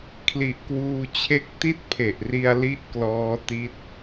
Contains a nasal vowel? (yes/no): no